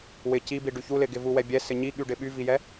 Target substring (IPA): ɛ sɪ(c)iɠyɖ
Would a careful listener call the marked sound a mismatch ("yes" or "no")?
yes